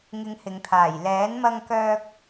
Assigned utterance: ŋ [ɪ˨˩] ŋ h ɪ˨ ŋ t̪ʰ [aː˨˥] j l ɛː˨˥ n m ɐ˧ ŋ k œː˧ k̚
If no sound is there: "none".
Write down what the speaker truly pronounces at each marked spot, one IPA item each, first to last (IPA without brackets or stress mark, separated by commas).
ɪ˨˧, aː˨˩